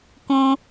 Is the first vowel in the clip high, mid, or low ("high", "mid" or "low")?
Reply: high